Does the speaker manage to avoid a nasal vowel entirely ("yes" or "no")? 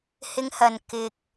yes